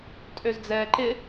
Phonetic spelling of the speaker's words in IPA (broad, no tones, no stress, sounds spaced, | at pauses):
tʼ ø z d͡z ɛː ǃ ɪ